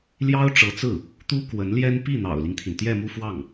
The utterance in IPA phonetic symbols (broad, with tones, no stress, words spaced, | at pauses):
ljɑ˥ʊ̯ ʈ͡ʂɤ˧˥t͡sɹ̩˥˩ | t̪u˥kwə˧˥nljɛ˥n pi˥˩n̪ɑ̰˨˩ʊ̯li˦ŋt̪ʰi˩n t̪jɛ˥˧mu˥˧fwɑ˥˩ŋ